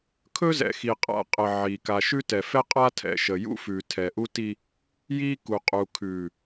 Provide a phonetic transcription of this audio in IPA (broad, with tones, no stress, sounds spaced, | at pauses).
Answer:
kʰ ɵ˦ z ɛ̰˨ x i˨ qʼ a̰˨ qʼ ə˨ ʕ i˨ k a˨ ʃ ʉ˦ t ɛ˨ f ɛ˦ qʼ a˦ tʰ ɛ̰˨ ʃ ə˨ j ṵ˦ f ʉ˨ tʰ ɛ˨ ʔ u˦ t i˦ | j i˦ k u˨ qʼ u˨ kʰ ʉ˨